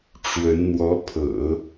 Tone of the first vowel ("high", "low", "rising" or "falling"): rising